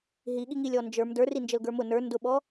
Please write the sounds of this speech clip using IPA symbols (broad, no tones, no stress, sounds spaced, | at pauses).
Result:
ɦ i ɠ i ŋ i lʲ ɔ n d͡ʒ ə˞ m d ə˞ r i n d͡ʒ ə l ɡ ə˞ m ʊ n ə˞ n d ʊ ɓ ɔ